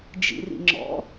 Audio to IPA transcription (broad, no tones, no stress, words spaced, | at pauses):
d͡ʒḭrḭŋ͡ǁɔ̰